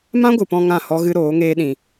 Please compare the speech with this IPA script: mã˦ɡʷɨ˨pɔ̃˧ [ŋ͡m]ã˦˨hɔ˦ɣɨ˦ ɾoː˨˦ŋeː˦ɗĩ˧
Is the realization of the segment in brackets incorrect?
yes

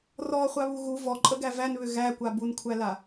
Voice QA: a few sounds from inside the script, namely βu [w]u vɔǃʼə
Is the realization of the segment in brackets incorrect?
yes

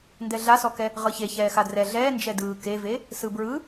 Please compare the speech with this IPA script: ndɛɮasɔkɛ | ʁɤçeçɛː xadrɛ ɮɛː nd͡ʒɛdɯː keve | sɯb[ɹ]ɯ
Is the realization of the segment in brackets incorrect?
no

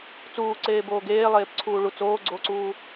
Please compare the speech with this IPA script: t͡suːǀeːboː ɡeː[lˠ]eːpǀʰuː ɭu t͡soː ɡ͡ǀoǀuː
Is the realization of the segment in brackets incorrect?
no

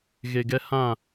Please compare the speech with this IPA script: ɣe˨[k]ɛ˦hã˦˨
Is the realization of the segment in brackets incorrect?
yes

